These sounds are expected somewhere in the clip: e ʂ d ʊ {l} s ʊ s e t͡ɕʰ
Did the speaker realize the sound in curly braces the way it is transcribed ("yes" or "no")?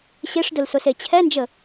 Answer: yes